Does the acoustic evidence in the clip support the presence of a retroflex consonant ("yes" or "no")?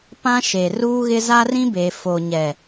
no